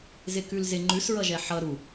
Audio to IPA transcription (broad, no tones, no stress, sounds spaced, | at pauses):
z ɪ k ʉ l z ɪ ŋ͡ǃ ʉ s ɹ ʌ ʒ ɛ ħ ʌ ɾ u